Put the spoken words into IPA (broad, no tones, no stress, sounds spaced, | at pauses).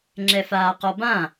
ŋ͡ǁ ɛ f aː q ɔ b ã